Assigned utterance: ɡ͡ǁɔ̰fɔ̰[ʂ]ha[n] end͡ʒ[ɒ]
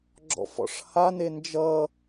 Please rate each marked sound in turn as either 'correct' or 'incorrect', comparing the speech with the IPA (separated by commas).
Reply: correct, correct, incorrect